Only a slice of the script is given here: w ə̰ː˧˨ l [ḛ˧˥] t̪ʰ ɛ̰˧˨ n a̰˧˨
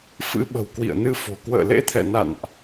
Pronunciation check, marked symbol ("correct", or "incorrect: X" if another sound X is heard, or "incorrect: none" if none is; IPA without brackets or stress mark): correct